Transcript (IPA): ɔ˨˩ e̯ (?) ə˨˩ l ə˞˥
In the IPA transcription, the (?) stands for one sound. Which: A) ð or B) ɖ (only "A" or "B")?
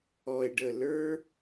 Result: B